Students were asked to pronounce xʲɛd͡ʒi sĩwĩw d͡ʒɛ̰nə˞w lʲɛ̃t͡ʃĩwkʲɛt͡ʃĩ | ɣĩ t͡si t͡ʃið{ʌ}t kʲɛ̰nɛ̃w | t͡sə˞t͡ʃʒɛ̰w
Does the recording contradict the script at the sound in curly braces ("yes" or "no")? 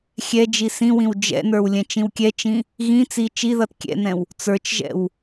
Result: no